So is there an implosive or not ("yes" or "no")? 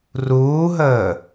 no